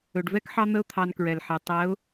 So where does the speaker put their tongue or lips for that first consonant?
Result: retroflex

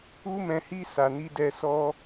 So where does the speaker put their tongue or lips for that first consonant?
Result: lips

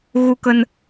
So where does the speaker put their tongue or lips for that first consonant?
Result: velum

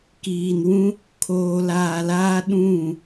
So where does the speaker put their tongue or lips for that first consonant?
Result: velum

